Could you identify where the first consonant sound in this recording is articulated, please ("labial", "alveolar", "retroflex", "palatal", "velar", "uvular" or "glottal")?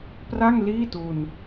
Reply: labial